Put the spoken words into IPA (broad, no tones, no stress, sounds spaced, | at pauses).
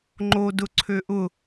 ŋ͡ǃ o d ʊ ǀʰ ø ʔ ʊ